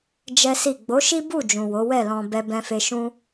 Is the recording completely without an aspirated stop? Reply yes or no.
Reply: yes